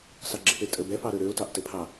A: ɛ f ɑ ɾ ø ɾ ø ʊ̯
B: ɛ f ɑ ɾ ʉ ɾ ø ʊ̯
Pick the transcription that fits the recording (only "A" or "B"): A